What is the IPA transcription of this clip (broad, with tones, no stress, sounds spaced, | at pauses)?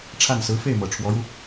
ʈ͡ʂʰ a˥˩ n s ɹ̩˧˥ f e˥˩ ɪ̯ m ɤ˨˩ ʈ͡ʂʰ w ɔ˧˥ ɻ u˧